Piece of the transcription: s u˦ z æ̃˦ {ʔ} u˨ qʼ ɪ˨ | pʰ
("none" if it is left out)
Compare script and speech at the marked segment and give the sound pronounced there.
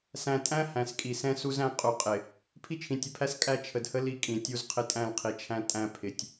qʼ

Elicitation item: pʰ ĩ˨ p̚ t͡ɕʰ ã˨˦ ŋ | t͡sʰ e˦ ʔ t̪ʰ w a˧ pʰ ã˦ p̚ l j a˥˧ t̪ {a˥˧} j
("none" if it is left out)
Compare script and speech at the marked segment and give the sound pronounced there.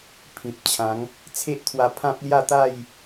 a˥˧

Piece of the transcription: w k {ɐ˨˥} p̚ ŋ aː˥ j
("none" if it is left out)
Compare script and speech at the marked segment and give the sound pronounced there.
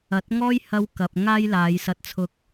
ɐ˨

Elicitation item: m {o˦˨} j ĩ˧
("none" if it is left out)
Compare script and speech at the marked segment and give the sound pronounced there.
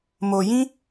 o˨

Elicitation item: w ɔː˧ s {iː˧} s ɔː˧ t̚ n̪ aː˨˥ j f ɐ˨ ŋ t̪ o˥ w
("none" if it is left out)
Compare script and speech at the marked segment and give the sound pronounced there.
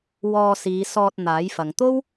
iː˨˧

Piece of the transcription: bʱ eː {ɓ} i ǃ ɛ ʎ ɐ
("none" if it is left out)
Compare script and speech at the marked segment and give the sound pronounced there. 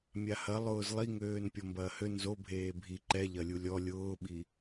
bʱ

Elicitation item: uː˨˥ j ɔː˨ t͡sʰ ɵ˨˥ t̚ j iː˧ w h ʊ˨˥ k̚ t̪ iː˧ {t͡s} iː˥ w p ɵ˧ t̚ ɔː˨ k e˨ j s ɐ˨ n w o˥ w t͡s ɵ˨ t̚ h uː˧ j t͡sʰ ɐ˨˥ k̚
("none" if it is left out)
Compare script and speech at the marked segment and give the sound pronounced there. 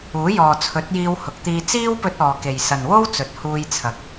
t͡s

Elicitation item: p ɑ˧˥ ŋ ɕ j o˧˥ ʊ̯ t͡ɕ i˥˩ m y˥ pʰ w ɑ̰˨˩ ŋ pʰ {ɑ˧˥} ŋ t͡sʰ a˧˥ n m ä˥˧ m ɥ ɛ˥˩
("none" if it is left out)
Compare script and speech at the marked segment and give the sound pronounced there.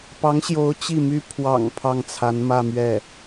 ɑ˥˩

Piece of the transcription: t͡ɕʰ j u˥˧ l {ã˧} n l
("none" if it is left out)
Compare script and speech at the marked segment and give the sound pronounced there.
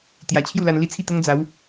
a˧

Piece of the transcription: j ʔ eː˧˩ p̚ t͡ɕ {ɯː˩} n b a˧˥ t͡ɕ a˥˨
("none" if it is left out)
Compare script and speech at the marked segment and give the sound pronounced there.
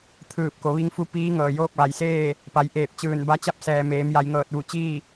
ɯː˧˩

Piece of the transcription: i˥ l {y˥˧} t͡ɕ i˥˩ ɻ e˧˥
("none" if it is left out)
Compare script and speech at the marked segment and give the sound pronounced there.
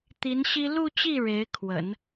u˥˧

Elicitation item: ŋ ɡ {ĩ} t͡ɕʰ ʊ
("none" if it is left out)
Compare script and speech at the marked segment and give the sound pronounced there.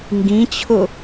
ĩ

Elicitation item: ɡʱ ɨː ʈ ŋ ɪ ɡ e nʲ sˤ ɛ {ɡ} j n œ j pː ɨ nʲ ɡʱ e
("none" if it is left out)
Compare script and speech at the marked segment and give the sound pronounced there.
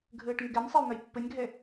none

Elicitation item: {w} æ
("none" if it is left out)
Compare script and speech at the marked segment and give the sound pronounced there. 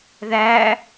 ð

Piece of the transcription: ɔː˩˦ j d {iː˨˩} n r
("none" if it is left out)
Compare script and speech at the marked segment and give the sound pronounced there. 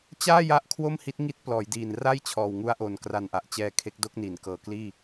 iː˨˩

